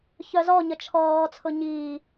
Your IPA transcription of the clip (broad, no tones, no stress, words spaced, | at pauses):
çœzɔɲə t͡ʃʰɔːt͡sʰʊ ɲiː